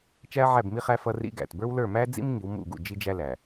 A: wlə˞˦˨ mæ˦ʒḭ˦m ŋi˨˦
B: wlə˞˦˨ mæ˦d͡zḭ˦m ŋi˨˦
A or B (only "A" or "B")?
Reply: B